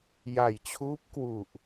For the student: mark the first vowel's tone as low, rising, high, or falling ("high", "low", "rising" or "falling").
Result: low